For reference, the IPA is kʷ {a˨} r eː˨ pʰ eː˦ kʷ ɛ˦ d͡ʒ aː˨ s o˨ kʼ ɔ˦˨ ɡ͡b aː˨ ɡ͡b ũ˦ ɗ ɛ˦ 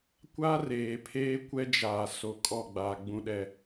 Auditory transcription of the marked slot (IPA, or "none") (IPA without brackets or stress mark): a˦